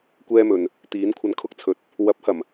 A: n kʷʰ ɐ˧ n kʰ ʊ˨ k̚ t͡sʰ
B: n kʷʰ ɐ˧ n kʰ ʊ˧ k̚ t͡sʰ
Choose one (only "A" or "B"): B